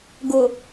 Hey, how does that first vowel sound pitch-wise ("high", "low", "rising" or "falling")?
low